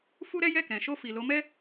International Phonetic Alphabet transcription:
f u˦ ɾ ɛ˦ j ɛ˦˨ k ɛ̃˨ ʃ o˧ f i˨ l o˨˦ m ɛ˦

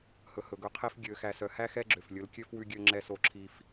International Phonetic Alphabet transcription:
h ɵ˨ h ɵ˨ ɡ ɵ˦ qʰ i˦ f ɡʲ ø˨ x æ˨ s œ˨ h æ˦ x ɛ˦ ɡ͡ǁ ø˨ f lʲ ɵ˨˦ l kʲ ø˦ f w ʉ˦ ɡʲ ø˦ ŋ͡ǁ ɛ˦ s o˦ ǁʰ i˦ f

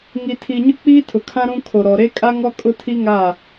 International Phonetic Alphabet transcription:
ŋ i˨ tʰ i˨ ɲ ʊ˦ k͡p iː˦ tʰ ʊ˨ kʰ ã˦ ɾ ũ˦ kʰ o˨ ɾ ɔ˨ ɾ e˦ kʼ a˦ ŋ ɔ˦ kʼ ʊ˦ tʰ i˦ ŋ a˦˨

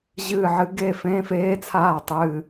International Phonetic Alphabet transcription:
ʑ ɨː˦˨ ʕ ɨ˧˥ ɡ e˦˨ f ẽ˧˥˧ f eː˧˥ t͡sʰ aː˦˨ tˤ ɨː˦˨

